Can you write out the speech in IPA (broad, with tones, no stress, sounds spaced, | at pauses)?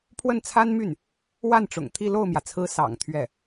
pʰ w ə˥˩ n t͡sʰ a˥ n m y˥˩ n | w a˥˩ n ʈ͡ʂ ʊ̰˨˩ ŋ t̪ʰ i˥˧ l o˥˩ ʊ̯ m j ä˩ t͡sʰ ɹ̩˧˥ s ɑ̰˨˩ ŋ t̪ʰ ɥ ɛ˥˩